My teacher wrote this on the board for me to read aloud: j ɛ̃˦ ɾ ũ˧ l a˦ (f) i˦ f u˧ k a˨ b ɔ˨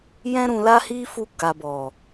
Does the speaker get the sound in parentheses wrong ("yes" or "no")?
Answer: yes